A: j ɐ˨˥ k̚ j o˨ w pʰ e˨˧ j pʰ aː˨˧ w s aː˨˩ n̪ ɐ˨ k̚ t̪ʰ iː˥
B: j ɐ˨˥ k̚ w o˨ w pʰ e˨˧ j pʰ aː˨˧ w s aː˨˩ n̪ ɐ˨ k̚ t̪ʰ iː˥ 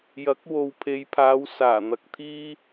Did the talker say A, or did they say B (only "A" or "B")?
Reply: B